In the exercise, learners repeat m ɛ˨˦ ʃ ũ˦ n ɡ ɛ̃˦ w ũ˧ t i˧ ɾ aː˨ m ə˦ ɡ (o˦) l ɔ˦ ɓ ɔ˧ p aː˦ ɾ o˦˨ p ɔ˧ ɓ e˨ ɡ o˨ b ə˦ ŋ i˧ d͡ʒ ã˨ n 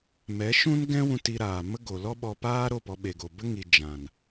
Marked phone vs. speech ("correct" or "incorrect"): incorrect